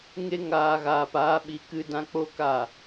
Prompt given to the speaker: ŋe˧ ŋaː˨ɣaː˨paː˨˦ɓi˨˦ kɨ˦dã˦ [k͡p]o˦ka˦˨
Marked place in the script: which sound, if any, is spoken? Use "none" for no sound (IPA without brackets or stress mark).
k͡p